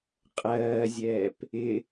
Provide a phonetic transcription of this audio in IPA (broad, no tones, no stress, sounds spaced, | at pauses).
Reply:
qʼ ɜː zʲ ɛː p | ɪ